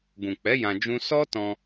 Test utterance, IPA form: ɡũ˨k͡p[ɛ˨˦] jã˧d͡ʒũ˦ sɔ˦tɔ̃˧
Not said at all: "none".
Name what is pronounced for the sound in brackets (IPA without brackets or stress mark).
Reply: ɛ˨˦